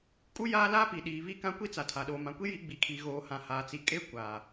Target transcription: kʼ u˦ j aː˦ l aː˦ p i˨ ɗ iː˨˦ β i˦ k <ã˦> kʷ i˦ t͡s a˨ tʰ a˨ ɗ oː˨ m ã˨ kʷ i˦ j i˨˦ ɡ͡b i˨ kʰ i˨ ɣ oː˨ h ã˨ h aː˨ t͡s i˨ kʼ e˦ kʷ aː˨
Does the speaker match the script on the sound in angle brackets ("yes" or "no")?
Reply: yes